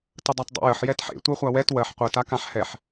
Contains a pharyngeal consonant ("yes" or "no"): yes